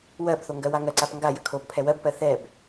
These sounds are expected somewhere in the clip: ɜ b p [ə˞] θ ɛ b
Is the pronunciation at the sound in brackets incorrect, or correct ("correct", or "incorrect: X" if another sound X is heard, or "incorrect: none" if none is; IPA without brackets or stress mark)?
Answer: incorrect: ɜ